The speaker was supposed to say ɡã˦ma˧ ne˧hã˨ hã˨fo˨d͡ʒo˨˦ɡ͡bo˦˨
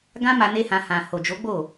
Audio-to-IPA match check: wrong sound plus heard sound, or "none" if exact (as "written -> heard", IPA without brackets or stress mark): f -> h